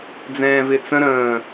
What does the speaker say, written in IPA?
d͡zɛ̃ːvɪt͡sə̃ ɾə̃ː

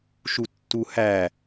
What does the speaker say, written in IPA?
ʃutːuhæ

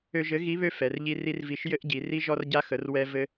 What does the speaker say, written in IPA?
ø˧ʒɘ˨˥ ɣi˨˥ βø˧ fɛ˩˧rʎi˧ ri˧rvi˨˥ʃ jɘ˧ʔɟi˩˧ ri˧ʒɔ˧rɟa˧xə˩˧r wɛ˧vɘ˧

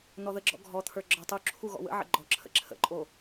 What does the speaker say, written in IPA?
n̪ɔðəɡ͡ǁɔ̰ ɡʱɔt̪ʰə˞ ɡ͡ǁɔtˤuǁʰu ɣɔ̰wə̰ʕə̰ ɡ͡ǃɔǁʰə̰ ǁʰə̰ǃʼo

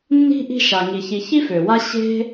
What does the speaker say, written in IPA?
nːi̤˥ʔi̤˦ ʃa˩ŋi˩ çi˨çi˥fø˩wa˦ ɕe̤˥

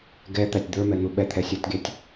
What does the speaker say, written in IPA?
ɡɛt̪ætʲ d̪ə˞mɛn̪u ɓɛt̪ʰɛsʲɛtɡʲætʲ

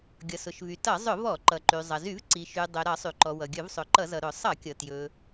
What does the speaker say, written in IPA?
ɡʲʌ˩sʊ˩ʃvy˩ tʌ˧˩˧zˤʊ˧˩˧ vɔ˧˩˧ǃʌ˩ǃy˩ zˤʌ˩zy˧˩˧v ǀi˩ʃy˩ dˤɵ˩ɾʌ˧˩˧ sˤy˩ǃɔ˩wʌ˩ ɡʲɵ˧˩˧vsˤɵ˩ǃʌ˧˩˧zʌ˩ ɾʊ˧˩˧sˤʌ˧˩˧kʲʌ˩tjɵ˩

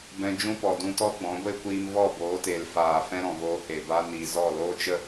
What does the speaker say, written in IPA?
bɛ̃˧d͡ʒũ˦pɔ˨ dũ˧tɔ˦ɡ͡bɔ̃˨˦ ɡʷe˦kʷiː˧m vɔ˦˨boː˨˦te˨l faː˨fɛ̃˦ ɾɔ̃˨voː˧he˨ ba˧niː˨ zɔ˦˨loː˦ t͡ʃə˦

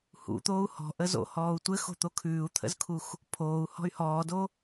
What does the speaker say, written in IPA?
hṵt̪oːu̯ hɔ̤ʔə zo̰hɔːu̯ tʷɘxo̤t̪o kʰʉːu̯t̪ʰə̰zkʰux | pʰoːu̯hɔ̤y̯ hɔːdo

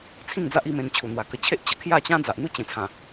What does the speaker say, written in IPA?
t͡sʰĩ˥˧ŋd͡za˦ʔ i˥˧mẽ˧n t͡ɕʰu˨˩n̪wa˨˩ kə˧t͡ɕʰe˦ʔ t͡ɕə˨˩kʰja˥˧t͡ɕã˦ d͡za˨ʔn̪u˦t͡ɕẽ˨˩t͡sʰã˨˩

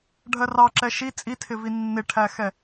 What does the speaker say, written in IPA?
ɖʱɜrɑǁɛ ʃi t͡sʼitʰɪvi nːɪʈʰæxɛ

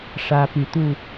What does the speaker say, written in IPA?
ʂä˦py˨˦t̪u˥˨

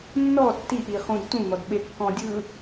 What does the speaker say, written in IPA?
nːɔ tːiʔiχũd tũn̪ɔd ɓekːɔ̃dʲɯ

